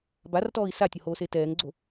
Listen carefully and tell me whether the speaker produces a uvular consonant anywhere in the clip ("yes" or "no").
no